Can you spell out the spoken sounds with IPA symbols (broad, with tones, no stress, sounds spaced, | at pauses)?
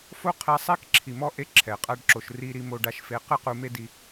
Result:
f o˦ qʰ ɛ˧ sˤ ɛ˦ k ǁʰ i˨ m ɔ˦ ʔ e˧ ǁʰ ɛ˨ qʼ a˦ ɖ ǁ o˨ ʃ r i˧ ɾ i˧ m o˧ ɖ a˧ ʃ f e˨˦ q ɯ˦ q u˧ m e˦ d i˧